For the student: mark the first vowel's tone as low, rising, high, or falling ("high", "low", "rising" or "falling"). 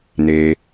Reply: low